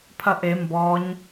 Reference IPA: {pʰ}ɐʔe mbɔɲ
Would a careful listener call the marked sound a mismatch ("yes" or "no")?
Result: no